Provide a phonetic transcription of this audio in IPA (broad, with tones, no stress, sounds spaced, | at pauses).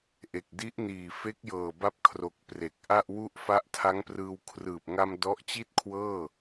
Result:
ʔ e˨˩ k̚ d i˦˥ ʔ n iː˨˩ f e˦˥ k̚ j ɤː˨˩ b a˥˩ p̚ kʰ r o˨˩ k̚ p r e˨˩ k̚ ʔ a˥˩ ʔ w u˥˩ ʔ f a˦˥ ʔ tʰ a˦˥ ŋ p r ɯː˧ w kʰ r ɯː˨˩ p̚ ŋ a˧ m d ɔ˦˥ ʔ t͡ɕ i˥˩ t̚ kʰ w ɤː˥˩